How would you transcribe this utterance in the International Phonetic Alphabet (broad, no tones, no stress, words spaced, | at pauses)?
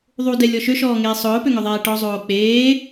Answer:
ðˤudɛlʲɔ ʃøʃɔːŋeː sˤʊːpøŋøðˤɛː ʈɔzˤoː k͡peː